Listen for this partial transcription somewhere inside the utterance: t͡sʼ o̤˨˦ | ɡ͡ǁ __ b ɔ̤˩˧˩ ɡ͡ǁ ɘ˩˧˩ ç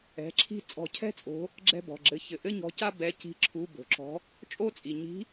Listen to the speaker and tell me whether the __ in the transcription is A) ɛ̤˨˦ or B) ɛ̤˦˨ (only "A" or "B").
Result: B